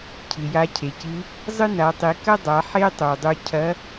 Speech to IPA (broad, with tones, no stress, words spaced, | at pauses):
cʰɨ˩ja˧cʰe˩cɨ˧˥ | zˤɨ˥na˩˧tˤi˩˧ kɐ˥dˤa˩˧ ħe˥tˤo˩dˤu˧ cʰɐ˧˥